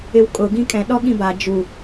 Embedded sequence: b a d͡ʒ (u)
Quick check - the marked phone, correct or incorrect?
correct